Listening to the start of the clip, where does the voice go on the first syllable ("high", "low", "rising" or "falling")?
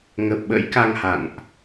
low